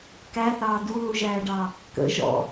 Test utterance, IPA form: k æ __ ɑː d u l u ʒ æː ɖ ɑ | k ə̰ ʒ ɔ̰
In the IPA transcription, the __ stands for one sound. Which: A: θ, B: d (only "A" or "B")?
A